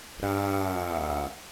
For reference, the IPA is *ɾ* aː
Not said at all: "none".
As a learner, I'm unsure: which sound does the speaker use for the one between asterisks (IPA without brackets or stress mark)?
ɾ